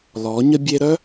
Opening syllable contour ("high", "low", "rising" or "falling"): rising